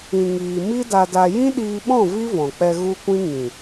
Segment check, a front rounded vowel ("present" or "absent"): absent